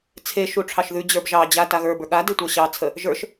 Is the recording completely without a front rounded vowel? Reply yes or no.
yes